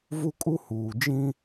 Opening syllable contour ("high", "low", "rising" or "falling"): high